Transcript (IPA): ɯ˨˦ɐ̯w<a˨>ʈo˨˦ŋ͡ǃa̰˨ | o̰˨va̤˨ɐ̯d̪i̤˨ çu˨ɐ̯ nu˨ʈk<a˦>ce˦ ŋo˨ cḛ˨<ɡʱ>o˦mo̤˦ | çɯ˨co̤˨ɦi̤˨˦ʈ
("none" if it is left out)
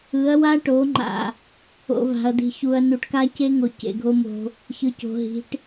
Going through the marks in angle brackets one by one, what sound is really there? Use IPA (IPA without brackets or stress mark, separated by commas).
a˦, a˦, ɡʱ